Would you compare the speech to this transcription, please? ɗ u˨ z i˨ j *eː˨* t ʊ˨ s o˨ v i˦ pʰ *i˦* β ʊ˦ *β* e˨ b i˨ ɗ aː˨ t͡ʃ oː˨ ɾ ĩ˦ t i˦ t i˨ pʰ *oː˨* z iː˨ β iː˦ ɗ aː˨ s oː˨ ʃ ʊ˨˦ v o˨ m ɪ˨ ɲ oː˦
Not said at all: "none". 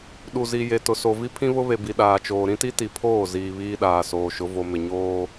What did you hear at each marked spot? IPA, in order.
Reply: e˨, ĩ˦, β, oː˦˨

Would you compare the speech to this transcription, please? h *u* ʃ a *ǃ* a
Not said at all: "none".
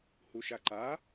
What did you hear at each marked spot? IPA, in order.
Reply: u, ǃ

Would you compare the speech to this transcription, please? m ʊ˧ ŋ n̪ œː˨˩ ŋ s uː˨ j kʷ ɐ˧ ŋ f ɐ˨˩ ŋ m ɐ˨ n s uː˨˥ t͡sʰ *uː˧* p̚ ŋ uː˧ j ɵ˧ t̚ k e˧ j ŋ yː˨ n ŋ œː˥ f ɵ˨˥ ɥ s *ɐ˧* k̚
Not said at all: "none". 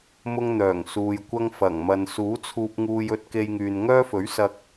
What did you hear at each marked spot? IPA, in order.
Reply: uː˧, ɐ˧

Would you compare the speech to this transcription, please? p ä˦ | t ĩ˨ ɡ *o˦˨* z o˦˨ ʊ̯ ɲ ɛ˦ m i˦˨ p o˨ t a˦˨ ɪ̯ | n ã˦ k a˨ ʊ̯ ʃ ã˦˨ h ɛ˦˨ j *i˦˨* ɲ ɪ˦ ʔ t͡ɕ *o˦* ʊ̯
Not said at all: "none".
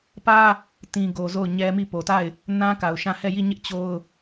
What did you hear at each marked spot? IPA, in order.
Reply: o˨, i˦˨, o˦

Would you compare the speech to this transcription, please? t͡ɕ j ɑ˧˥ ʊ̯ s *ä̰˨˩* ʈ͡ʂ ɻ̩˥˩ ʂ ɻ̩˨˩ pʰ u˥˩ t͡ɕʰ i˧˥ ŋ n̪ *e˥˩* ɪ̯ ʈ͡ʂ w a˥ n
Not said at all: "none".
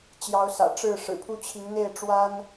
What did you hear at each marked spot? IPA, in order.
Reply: ä̰˨˩, e˥˩

